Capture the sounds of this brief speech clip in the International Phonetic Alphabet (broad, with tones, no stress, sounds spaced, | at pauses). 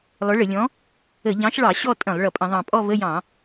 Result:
lˠ ʊ˨˥ ɭ ə˧˩˧ lʲ ɔ̃˨˥ | ə˧˩˧ ʎ ɑ̃˨˥ ʃ ɭ ɑ˧˩˧ ɕ ɔ˥˧ tʼ ə̃˧˩˧ lˠ ɭ ʌ˨˩ pʼ ə̃˧˩˧ ðˤ ɑ̃˨˩ pʼ ɔ˥˧ v ə˧˥˧ j ɑ̃˧˩˧